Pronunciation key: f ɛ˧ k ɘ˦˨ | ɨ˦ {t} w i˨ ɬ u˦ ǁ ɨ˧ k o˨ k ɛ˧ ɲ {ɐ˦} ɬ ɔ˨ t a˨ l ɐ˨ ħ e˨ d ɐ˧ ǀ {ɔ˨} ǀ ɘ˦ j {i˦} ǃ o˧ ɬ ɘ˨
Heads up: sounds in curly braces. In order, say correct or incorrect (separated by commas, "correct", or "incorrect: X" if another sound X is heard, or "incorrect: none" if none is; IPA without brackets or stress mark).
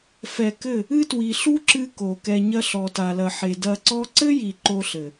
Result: correct, correct, incorrect: ɔ˦, incorrect: i˨